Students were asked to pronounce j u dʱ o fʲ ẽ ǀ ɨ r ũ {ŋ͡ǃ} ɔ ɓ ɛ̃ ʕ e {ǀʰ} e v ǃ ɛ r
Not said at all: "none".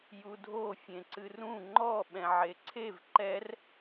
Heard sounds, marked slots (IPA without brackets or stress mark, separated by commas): ŋ͡ǃ, ǀʰ